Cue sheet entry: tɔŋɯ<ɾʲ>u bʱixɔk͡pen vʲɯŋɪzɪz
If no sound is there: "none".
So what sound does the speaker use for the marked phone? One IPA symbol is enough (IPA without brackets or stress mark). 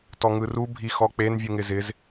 r